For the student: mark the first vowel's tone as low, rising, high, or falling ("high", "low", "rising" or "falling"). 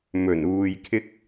low